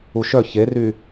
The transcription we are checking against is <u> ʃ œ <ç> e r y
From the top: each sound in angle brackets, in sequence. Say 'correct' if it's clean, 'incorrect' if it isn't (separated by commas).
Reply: correct, correct